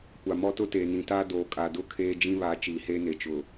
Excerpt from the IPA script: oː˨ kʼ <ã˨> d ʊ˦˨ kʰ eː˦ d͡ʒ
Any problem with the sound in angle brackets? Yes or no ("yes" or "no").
yes